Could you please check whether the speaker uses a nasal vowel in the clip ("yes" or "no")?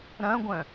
yes